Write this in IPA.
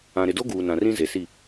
ã˨ ɾ ɪ˨ d o˦ ɡ uː˨ n ã˨ r ĩ˦ z e˨ s i˦˨

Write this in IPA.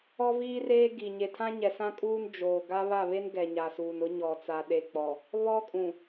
ɔ˦ v iː˦ r eː˦ ɡ i˨ ɲ e˨ tʰ ã˦ ɲ ɛ˨ s ã˦ kʼ uː˦ n d͡ʒ oː˨ ɡ a˦ β a˦˨ β e˦ n ɡ ɛ˨ ɲ a˨ s uː˨ n ʊ˦ ɲ ɔ˨ t͡s a˨ ɗ e˨ k͡p ɔ˨ | β ɔ˦ kʼ ũ˨

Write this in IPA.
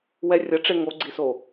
w ɛ rʲ ʌ ʈ͡ʂ e ŋ o ɡ͡ǀ i s o

